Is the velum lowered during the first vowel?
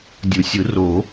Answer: no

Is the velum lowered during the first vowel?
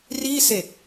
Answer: no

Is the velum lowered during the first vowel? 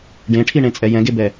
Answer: yes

